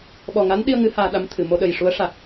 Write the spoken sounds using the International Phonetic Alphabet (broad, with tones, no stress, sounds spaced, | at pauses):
ɓ ɔ˨˩ ŋ a˧˥ n ɗ i˧ ə̯ ŋ ɨ˧˥ h aː˧ ɗ a˧˥ m t̪ʰ ɨ˨˩˨ m o˧ ɗ ə˨˩ j ʂ u˧˥ ə̯ ʂ a˨˩ k̚